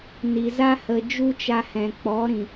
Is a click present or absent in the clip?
absent